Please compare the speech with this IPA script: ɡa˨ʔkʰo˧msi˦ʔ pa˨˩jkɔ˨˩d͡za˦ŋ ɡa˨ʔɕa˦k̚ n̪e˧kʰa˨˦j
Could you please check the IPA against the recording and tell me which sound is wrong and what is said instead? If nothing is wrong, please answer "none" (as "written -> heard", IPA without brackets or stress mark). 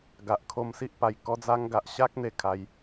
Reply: ɔ˨˩ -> ɔ˦